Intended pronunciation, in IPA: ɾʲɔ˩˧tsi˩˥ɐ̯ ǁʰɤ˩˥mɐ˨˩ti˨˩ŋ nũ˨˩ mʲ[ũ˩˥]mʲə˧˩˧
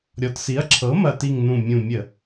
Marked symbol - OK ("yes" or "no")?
no